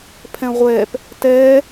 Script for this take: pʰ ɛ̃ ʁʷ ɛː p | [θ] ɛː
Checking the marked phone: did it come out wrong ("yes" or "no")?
yes